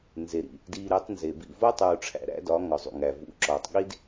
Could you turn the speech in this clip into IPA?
nze˨ɾḭ˨ | diː˨ ɾe˨˦tˤnze˨bḭ˦˨ vo˦tˤuː˨ʈ͡ʂʰæ̰˨ ɾæ̰˦dɒ˨˦ ŋɒ˨zˤṵ˨ŋæː˨ vṵ˨ǁɒː˨tˤ ɠi˦d

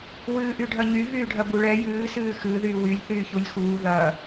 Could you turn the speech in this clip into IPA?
wɨːʔyɖʱɐɲy vyːɖʱɐbuɭɛ jɨː sɨːxɨ ðyːwylʲ θyːçulʲxuː ðɐ

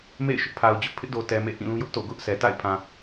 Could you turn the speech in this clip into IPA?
mḛ˦˨ɪ̯ʃʊ˦ʔpʰa˨ʊ̯d͡ʑʊ˦ʔ pʰɪ˦ʔdo˨ tɛ˨mḛ˦˨ ʔĩ˦˨lũ˦jʊ˦ʔ to̰˦˨ɡʊ˦ʔsɛ˨ ta̰˦˨ɪ̯pʰã˨

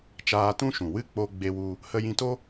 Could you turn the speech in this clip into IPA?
t͡ʃaː˧tũ˦ʃũ˨ wɨ˦˨k͡po˧ ɡ͡be˦wu˦ | hə˧jĩ˧to˦

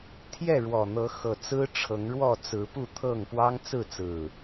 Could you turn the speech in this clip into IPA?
t̪ʰjɛ˥˨ɻwɔ˨˩n̪ɤ˨˦xɤ˨˩ t͡sɹ̩˦ʈ͡ʂʰɤ˨˦ŋɻwɔ˥˨ t͡sɹ̩˨˦pu˥˨t̪ʰɤ˥˨ŋ pwɑ˦ŋt͡sɹ̩˥˨t͡sɹ̩˨˩

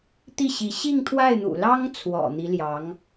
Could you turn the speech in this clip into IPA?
t̪i˥˩ɕi˧˥ ɕi˥˧ŋt̪ʰwa˥˩ɪ̯n̪ṵ˨˩ lɑ˥ŋt͡sʰwɔ̰˨˩ n̪i˧˥ljɑ˧˥ŋ

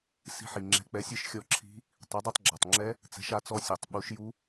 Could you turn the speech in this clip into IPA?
si̤˧ħi˩ ŋ͡ǁɛ̤˩˥k͡pɛ˩˥sʲɨ˧˥ʃ xʲɔ˧ǁʰi̤˧˥ | tˤɘ˩˥dˤi˧tˤɡ͡ǁa˩tˤŋ͡ǁɛ˧˥ | t͡sɛ̤˩˥ʃa˩˥t͡sɔ˧˥ sʲɘ˩tˤ ɓu˩˥ʃ ju˧˥

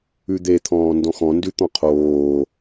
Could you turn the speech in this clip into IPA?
ʉd̪et̪ʰɔ̃ː ndɔ̃xɔ̃ndʉt̪ɔ̃ qʰoː

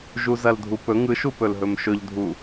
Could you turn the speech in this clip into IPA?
ʒuzɐldʱupɵ ŋɯʃupɵlɦɵm ʃɵʎdʱu

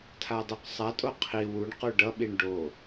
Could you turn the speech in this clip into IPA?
tʰadˤuqsˤatʼo qʰi wuɳqu ɖʌɓiɳ ɖo

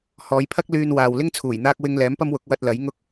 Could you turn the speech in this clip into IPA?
hɔː˨˧jpʰɐ˥k̚ lyː˧nwaː˨w lɪ˥ŋt͡sʰuː˨˩j n̪aː˥k̚ wɪ˥ŋ lɛː˨˥mpɐ˥mwʊ˨˥k̚ wɐ˧t̚lɐ˨˥j ŋʊ˥k̚

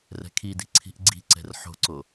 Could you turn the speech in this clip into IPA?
rɛ̤kʰidi̤ ǀʰi̤ʔɡ͡ǀi̤ǀɛ̤r ħo̤ǀo

